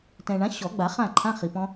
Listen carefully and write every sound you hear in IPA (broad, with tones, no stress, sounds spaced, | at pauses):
t ɛ̃˨ ɳ ã˨˥ ɕ ɔ˨˩˦ ɡ͡b a˨˩˦ χ ã˥˨ ǃʰ ã˧˥˧ χ i˨ p ɔ̃˦˥